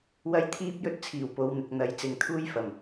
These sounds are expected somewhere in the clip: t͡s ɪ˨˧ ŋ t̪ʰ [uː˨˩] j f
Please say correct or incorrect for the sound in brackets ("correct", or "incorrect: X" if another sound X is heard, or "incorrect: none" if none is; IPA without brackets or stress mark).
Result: incorrect: uː˥